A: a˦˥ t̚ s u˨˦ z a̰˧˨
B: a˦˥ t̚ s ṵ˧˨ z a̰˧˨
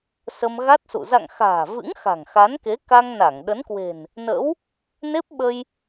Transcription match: B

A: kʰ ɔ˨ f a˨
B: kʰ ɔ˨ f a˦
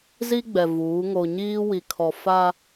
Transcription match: B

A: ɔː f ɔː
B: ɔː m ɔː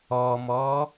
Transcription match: B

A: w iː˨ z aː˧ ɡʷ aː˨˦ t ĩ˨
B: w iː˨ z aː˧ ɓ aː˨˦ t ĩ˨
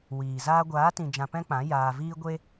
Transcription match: A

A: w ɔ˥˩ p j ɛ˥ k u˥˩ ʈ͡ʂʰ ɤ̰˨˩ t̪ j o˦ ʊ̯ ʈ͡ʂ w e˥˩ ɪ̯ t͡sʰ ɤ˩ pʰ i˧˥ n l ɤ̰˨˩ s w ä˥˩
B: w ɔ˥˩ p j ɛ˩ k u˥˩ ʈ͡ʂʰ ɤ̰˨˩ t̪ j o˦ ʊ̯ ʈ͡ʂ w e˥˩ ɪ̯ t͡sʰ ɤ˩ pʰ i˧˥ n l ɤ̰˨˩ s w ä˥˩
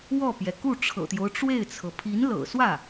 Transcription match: B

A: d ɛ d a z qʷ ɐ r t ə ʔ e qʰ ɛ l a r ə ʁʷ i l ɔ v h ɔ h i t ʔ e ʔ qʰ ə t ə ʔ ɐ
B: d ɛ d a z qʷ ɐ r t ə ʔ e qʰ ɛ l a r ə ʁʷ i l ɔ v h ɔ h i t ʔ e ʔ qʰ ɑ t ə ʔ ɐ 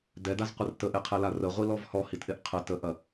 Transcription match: A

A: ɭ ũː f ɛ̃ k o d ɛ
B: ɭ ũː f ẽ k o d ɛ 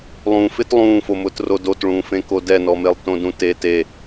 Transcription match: B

